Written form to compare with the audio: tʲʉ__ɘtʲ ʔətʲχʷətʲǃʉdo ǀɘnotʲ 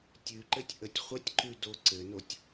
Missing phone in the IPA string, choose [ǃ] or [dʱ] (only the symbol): ǃ